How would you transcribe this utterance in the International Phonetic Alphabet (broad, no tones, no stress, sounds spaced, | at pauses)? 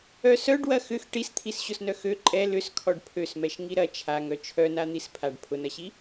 œ s œ ɖ w ɐ x ʏ x ʈ i s t̪ʰ i s ɕ ʊ s n œ x ø ǃʼ ɛ l ʏ s kʰ ɔ ɖ pʰ ø s m ɛ ʃ ŋ i ɾ ɐ t͡ʃʰ a ŋ œ t͡ʃʰ œ n a n̪ i s pʰ a ɖ pʰ ʊ n ɐ ɕ i